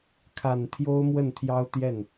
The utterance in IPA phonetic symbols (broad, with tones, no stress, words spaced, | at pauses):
kʰa˨˩n t̪ʰjo˥ʊ̯mwə˥˩n t̪ʰjɑ˥ʊ̯t̪jɛ˥˩n